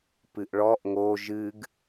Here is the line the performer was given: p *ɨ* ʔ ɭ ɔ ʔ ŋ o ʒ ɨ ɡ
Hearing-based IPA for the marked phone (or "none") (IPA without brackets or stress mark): ɨ